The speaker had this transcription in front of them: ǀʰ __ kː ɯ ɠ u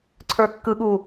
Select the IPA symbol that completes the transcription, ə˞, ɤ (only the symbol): ə˞